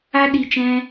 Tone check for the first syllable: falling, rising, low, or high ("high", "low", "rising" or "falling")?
high